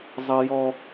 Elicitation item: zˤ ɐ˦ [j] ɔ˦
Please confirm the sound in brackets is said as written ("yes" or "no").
yes